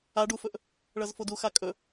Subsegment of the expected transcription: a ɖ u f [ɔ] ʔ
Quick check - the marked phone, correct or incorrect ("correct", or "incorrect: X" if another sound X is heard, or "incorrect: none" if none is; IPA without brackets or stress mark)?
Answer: incorrect: ɵ